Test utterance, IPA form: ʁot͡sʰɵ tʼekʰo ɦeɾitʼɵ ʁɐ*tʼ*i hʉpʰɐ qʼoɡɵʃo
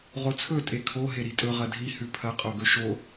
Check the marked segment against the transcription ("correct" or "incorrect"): incorrect